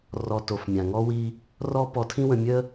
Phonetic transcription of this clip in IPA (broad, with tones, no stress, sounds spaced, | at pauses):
r ɔ˧ t o˨ f mʲ ã˨ ŋ ɔ˦ w i˦ | r ɔ˦ p ɔ˧ tʰ ĩ˦ w ə̃˧ mʲ ə˦